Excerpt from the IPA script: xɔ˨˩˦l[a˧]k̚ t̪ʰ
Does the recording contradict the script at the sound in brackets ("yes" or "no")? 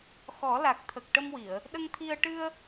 yes